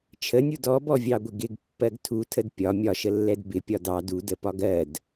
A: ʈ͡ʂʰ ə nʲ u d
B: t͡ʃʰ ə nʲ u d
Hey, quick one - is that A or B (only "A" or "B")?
B